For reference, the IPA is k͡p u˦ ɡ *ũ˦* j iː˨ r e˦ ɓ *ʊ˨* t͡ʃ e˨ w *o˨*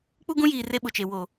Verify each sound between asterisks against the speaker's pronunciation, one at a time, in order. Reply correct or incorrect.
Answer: correct, correct, correct

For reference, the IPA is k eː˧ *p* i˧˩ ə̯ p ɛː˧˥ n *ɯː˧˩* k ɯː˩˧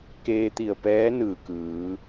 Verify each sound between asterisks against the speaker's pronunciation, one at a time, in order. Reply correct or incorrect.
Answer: incorrect: t̪, correct

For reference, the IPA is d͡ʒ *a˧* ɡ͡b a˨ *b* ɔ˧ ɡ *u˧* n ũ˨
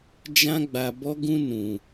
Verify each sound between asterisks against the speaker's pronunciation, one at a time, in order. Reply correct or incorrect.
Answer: incorrect: ã˧, correct, incorrect: ũ˧

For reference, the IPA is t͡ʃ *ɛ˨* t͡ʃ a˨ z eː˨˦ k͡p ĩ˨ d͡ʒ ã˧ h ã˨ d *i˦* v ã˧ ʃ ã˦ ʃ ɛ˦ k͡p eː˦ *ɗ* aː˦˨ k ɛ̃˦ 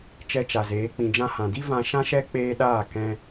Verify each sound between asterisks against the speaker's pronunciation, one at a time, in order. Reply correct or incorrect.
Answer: incorrect: ɛ˧, correct, correct

